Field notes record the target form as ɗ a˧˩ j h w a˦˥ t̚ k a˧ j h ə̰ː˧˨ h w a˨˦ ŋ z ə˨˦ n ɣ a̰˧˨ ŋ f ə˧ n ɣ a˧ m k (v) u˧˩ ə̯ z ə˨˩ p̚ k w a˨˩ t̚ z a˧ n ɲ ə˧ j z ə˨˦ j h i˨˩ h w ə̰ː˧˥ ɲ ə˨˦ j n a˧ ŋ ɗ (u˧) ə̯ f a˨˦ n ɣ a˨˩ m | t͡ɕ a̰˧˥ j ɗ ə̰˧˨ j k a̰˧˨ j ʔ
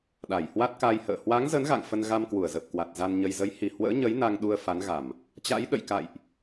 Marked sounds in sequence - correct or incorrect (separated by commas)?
incorrect, correct